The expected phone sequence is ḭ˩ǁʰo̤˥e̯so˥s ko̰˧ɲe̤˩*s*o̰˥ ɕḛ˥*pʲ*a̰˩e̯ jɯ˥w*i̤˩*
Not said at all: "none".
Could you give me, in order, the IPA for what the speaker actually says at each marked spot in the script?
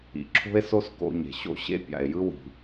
ɕ, pʲ, i̤˩

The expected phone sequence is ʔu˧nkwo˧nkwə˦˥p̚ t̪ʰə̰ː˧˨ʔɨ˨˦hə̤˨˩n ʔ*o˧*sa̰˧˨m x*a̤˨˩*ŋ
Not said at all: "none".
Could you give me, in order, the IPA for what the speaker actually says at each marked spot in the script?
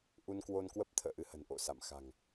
o̰˧˨, a̤˨˩

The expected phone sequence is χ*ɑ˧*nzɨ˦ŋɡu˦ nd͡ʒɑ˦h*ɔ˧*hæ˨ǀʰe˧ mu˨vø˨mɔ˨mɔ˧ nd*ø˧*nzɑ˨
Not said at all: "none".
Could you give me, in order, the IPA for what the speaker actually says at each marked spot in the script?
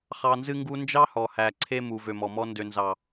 ɑ˧, ɔ˨, ø˨

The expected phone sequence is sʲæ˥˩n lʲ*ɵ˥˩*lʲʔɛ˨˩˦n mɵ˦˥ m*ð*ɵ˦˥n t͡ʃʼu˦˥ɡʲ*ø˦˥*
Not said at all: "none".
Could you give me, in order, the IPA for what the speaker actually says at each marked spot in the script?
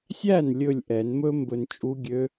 ɵ˥˩, b, ø˦˥

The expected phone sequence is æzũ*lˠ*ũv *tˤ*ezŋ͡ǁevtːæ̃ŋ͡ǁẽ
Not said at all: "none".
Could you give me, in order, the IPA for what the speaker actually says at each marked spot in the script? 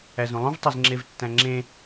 lˠ, tˤ

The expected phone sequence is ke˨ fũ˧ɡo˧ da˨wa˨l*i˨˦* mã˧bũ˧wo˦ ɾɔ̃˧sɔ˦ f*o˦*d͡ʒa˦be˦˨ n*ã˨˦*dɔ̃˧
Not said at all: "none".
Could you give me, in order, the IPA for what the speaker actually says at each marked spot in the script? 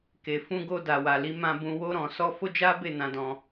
i˨˦, o˦, ã˧

